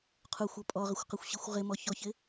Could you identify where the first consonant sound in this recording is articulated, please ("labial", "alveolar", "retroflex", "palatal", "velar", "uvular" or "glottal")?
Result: uvular